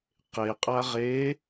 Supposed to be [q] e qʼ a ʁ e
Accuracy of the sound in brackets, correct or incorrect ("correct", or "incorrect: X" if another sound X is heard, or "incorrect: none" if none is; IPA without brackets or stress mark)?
correct